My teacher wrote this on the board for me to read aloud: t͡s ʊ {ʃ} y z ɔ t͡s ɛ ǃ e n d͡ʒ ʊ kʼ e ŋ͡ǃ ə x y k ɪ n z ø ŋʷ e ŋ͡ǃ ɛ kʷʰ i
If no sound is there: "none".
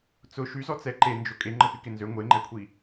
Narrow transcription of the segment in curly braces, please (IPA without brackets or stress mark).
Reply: ʃ